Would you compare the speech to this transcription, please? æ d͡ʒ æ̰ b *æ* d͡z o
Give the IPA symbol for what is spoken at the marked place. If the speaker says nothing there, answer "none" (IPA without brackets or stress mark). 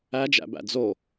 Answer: æ̰